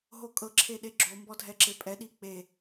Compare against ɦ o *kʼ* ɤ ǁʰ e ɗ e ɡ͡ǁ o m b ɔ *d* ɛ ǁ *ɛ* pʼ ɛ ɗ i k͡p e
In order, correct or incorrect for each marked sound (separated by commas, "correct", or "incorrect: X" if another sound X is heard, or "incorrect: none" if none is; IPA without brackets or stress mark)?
correct, incorrect: dʱ, incorrect: e